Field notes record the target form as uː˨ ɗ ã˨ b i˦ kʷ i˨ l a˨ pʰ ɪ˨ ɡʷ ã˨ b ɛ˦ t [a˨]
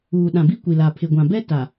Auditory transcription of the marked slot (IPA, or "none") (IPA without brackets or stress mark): a˨